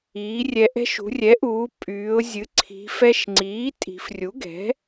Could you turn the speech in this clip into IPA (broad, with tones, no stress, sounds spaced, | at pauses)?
iː˩˥ rʲ ɛ˧ ʔ ɛ̤˧ ʃ ṳ˩˧ rʲ ɛ˩˥ ʔ uː˩˧ pʼ yː˩˧ ʊ̯ zʲ ɨ˩˥ ǀʰ i̤˩˧ f ɛ˧ ʃ ŋ͡ǀ iː˩˥ tʼ i̤˩˧ f rʲ u˩˥ ɡ ɛ̤˩˥